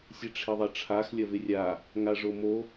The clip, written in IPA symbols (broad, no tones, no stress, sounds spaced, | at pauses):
sʲ e ʈ͡ʂʰ ɪ ðˤ ɐ ʈ͡ʂʰ a x lʲ ɐ v ɪ rʲ a | ŋ a ʐ o m o